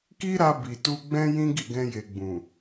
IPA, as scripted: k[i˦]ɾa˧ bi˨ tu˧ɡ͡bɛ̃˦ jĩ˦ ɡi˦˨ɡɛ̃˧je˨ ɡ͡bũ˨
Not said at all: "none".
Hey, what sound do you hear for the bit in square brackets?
i˦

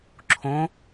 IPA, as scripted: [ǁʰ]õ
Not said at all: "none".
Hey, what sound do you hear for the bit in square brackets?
ǁʰ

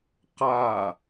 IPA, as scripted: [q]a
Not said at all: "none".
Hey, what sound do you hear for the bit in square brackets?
q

